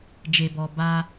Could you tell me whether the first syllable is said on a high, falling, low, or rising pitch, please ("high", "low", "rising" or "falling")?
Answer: low